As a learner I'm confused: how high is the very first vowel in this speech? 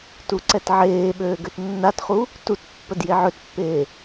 high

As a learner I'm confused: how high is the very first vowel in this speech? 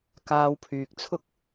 low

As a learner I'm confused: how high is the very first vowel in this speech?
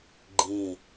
high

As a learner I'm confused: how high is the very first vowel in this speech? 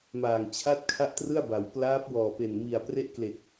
low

